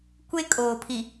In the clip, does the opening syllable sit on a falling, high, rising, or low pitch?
high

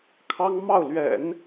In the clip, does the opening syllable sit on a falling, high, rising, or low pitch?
high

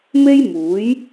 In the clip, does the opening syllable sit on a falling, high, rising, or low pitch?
high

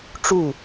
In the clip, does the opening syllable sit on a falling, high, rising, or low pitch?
falling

